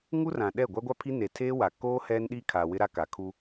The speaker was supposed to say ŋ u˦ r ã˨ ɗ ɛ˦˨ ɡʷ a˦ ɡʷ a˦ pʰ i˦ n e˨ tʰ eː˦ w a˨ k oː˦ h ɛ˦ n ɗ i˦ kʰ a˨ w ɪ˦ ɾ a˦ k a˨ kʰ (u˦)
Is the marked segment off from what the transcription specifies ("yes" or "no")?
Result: no